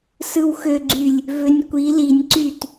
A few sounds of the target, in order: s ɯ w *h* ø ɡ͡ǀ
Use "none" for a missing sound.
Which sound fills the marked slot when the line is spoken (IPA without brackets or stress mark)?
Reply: x